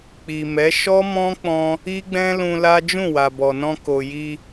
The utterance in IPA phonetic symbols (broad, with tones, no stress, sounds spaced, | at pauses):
k͡p i˨ m ɛ˨˦ ʃ ɔ˦ m ɔ̃˦ k͡p ɔ̃˧ | i˦ ɡ͡b ɛ̃˦ l ũ˧ l a˦ d͡ʒ ũ˦˨ w a˨ b ɔ˨ n ɔ̃˧ k o˨ j i˧